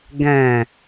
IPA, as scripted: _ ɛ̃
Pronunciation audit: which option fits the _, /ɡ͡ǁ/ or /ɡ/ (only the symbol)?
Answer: ɡ